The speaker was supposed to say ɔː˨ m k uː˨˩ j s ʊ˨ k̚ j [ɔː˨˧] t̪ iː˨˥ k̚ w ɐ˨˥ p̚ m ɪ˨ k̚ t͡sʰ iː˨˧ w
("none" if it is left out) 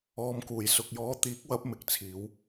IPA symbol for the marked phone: ɔː˨˧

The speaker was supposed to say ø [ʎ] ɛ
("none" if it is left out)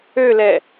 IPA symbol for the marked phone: l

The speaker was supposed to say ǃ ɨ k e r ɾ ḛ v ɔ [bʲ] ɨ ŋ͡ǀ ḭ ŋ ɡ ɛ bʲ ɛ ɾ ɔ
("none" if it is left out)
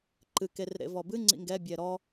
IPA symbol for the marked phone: b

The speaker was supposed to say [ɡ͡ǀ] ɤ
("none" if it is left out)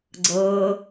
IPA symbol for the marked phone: ɡ͡ǀ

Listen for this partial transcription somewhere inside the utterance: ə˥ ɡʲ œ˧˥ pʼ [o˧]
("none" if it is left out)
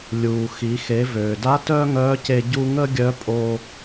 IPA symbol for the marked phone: o˧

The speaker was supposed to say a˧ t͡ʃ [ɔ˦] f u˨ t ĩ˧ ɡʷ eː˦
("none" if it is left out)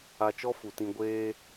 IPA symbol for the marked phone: ɔ˦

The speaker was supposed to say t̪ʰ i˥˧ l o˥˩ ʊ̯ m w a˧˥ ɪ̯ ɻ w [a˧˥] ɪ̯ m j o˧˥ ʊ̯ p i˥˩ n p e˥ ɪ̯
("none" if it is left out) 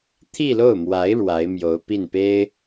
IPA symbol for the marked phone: a˧˥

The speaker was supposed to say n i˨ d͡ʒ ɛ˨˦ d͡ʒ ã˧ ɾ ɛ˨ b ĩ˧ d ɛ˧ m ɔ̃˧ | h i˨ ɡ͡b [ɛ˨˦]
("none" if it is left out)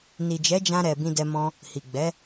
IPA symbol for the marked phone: ɛ˨˦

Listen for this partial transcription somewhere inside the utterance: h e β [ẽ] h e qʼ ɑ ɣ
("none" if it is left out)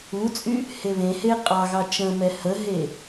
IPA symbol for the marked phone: ẽ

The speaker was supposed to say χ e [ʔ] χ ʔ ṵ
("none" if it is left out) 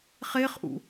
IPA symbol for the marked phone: none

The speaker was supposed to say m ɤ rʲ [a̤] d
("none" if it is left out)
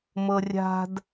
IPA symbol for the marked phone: a̤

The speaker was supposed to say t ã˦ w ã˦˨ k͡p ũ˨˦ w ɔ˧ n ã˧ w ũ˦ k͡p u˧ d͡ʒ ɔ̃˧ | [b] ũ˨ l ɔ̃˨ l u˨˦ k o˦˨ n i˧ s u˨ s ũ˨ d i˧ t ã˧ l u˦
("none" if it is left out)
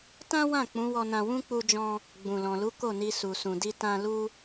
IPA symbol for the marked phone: ɡ͡b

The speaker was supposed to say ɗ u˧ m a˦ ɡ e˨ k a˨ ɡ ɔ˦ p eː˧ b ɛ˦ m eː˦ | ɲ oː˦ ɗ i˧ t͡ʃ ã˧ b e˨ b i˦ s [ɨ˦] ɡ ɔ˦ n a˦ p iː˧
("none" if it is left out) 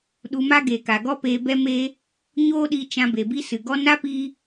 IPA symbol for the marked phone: ɨ˨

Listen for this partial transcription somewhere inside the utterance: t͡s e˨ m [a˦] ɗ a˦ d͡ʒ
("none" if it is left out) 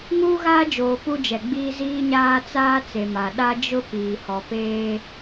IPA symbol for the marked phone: a˨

